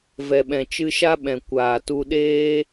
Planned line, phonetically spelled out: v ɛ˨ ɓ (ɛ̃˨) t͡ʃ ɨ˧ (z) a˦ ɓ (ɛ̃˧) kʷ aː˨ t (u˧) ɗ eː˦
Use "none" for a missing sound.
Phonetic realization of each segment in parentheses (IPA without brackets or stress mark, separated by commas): ɛ̃˨, ʃ, ɛ̃˨, u˧